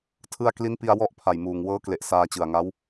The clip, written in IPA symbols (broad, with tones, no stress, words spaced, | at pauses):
tʰɯ˧a̯ kli˦˥npi˧a̯ wɔ˥˩ʔ pʰa˨˩jmuː˨˩ŋ wɤː˦˥kle˨˩ʔ saː˧t͡ɕɯ˨˩a̯ŋa˦˥w